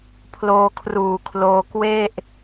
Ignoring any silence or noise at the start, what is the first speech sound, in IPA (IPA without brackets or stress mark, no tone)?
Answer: pʰ